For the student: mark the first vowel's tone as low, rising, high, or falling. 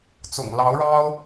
low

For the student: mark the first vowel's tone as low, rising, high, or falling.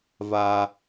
high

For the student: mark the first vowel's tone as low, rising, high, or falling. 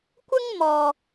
high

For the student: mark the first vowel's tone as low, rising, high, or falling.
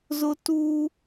high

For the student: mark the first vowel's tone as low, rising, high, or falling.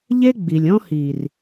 high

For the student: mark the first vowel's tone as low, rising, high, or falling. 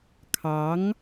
rising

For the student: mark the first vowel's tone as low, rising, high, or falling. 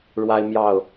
high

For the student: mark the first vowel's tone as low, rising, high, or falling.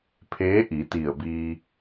rising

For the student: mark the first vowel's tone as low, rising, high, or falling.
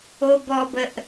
low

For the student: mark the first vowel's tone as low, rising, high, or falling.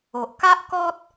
low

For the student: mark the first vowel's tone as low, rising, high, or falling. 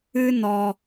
high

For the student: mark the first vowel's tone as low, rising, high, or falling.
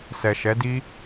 low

